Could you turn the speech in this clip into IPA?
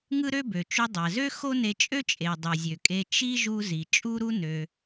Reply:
ŋ ɯ˥ ɾ ø˥ b ø˩ t͡ʃ u˧ dˤ æ˩ z ø˥ x o˥ n e˧ t͡ʃʼ ø˥ t͡ʃʼ e˩ dˤ ɯ˩ zʲ ø˩ kʼ e˧ t͡ʃ i˥ ʒ u˥ z i˩ t͡ʃʼ u˥ ɾ u˥ n ø˩

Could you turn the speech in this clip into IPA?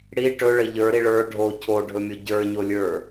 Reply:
ɽ i ʈ ɵ ɭ ə ʎ ə˞ ɾ i ɭ ə˞ ɖʱ o cʰ o ɖʱ ɵ mʲ o ɟ ə˞ ɲ o lʲ ə˞

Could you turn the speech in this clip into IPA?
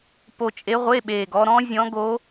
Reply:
p o˧ t͡ʃʼ e˧˥ ʁʷ e˧˥˧ ɓ eː˨˩ ɡ ɔ˧ ɾ ɔ̃˧˥ zʲ ɔ̃˧˥ ɡ o˧˥

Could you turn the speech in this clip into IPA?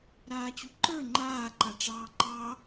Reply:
ɾ aː t͡ɕ u ǃ ə˞ ŋ͡ǃ aː ǃ a ʈ͡ʂ ɑː ǃ ɑ

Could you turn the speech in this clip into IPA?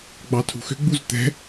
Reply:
ɡ͡b ɑ tʰ ṳ x ʏ ɡ͡b u z t̪ ɛ̤

